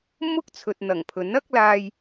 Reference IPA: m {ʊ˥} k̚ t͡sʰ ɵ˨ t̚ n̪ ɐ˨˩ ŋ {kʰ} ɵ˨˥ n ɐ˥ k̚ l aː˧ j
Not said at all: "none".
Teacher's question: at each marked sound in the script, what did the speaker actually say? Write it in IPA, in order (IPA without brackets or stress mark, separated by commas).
ʊ˥, pʰ